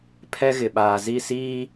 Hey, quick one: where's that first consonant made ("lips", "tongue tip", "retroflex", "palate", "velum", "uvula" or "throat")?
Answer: lips